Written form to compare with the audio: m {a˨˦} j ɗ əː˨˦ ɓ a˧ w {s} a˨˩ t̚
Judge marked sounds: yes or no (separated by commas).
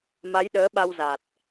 yes, no